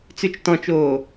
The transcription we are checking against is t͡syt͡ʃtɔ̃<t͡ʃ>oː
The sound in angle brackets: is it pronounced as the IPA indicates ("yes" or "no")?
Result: yes